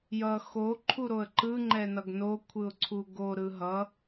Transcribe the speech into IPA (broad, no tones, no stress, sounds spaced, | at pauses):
j ʌ x o ǃʰ u ɾ o ə̯ ǃ ɯ ŋ͡ǃ ɛ n ʌ ɡ n o kʷʰ ɯ ʊ̯ ǀʰ u ɡ o ɾ ɯ ɦ ʌ